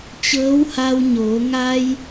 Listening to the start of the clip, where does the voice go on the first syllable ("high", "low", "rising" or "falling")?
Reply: rising